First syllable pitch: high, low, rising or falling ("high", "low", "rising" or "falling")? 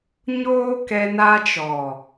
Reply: high